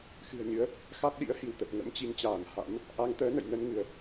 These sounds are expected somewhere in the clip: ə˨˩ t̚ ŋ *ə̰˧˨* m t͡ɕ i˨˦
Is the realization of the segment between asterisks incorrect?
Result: yes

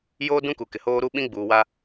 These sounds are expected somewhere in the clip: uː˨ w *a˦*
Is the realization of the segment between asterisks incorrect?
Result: no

